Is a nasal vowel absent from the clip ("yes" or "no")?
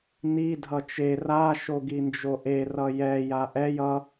yes